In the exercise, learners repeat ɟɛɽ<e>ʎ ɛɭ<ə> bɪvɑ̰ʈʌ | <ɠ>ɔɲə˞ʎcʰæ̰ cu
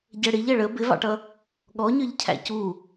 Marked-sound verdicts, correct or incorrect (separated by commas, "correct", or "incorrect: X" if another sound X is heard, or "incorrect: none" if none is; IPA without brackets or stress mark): incorrect: i, correct, correct